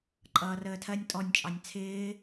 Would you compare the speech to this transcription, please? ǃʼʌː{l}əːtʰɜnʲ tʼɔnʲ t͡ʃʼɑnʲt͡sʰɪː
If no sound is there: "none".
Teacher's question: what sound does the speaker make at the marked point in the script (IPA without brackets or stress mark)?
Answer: r